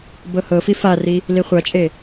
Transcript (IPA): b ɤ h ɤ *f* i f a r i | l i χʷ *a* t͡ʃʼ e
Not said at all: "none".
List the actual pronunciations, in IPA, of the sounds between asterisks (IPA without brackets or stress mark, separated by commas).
f, a